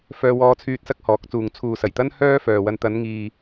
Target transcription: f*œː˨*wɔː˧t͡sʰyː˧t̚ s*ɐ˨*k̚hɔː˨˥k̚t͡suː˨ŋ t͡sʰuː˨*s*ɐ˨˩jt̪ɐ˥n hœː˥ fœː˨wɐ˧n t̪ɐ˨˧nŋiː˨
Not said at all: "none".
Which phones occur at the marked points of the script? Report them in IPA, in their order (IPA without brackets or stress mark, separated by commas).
œː˧, ɐ˥, s